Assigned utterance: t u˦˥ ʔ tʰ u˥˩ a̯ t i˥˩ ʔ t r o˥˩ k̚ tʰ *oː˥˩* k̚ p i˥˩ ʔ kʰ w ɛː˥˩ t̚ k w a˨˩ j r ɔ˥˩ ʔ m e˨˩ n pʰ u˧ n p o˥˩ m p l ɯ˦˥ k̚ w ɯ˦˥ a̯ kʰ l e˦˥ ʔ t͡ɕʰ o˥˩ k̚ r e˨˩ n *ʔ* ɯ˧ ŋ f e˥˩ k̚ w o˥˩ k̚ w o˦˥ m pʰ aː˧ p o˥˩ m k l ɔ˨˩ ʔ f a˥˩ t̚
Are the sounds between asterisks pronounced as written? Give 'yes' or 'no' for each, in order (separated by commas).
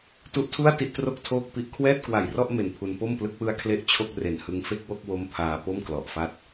yes, no